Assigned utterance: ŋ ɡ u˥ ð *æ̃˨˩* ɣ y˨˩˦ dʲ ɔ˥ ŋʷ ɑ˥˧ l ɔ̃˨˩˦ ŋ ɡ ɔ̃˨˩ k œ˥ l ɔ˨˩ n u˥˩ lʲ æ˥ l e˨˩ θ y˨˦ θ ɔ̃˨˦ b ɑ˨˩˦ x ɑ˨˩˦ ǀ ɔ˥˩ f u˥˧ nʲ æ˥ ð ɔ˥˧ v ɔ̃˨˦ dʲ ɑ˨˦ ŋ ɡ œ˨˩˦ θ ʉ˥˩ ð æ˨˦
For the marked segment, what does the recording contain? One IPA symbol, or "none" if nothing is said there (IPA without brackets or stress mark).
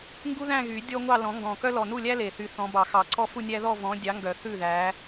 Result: æ̃˥˧